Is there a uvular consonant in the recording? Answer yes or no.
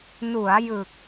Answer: no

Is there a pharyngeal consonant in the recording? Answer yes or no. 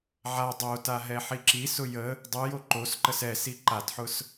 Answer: yes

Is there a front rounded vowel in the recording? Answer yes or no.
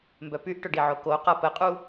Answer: yes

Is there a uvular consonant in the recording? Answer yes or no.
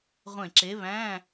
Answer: yes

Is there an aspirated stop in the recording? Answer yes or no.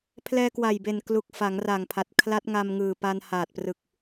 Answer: yes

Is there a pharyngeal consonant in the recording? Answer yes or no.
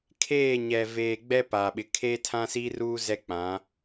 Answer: no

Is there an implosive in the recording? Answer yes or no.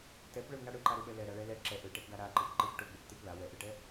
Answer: yes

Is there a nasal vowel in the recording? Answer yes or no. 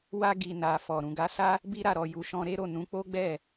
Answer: yes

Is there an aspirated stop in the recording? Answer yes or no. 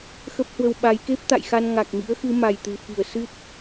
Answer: no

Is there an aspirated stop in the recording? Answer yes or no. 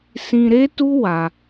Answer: no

